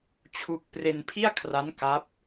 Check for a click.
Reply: absent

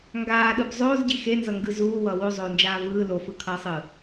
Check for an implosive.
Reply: present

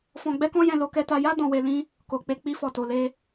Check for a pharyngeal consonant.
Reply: absent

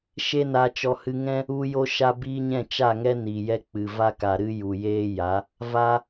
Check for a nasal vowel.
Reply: present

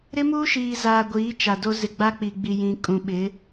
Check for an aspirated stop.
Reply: absent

